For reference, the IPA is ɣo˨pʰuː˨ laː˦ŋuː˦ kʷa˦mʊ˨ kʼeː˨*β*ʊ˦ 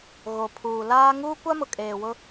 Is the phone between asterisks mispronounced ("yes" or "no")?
yes